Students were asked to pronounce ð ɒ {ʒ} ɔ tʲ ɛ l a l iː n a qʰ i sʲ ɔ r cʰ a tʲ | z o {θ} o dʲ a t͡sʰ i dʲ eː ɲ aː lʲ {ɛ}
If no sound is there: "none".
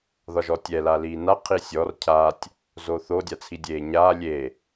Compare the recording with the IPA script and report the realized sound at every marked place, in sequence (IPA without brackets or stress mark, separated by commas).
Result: ʒ, θ, e